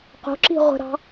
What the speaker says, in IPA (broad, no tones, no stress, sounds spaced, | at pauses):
q o̤ ǁ i̤ ʁʷ ə̤ ɾ ɑ̤